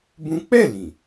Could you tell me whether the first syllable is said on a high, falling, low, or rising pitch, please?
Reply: high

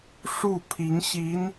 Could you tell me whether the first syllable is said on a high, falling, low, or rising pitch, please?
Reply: falling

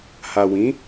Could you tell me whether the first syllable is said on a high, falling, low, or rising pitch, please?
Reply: low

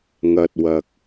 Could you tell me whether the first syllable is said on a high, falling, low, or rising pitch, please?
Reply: low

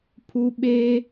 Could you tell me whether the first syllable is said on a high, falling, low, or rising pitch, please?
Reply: high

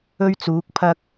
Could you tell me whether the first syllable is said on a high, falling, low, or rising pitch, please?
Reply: high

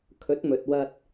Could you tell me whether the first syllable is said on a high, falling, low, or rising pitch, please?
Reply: rising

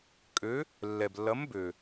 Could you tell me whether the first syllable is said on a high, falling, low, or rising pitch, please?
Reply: rising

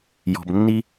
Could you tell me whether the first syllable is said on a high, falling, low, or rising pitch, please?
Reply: low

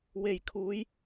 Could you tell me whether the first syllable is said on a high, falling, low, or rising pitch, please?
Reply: low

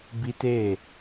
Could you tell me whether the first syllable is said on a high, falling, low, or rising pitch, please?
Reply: high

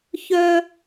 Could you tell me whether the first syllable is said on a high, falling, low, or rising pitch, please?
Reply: high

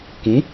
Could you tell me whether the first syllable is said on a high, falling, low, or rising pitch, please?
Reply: rising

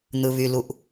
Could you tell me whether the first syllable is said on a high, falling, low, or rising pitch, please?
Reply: low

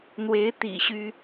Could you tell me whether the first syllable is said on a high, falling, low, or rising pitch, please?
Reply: rising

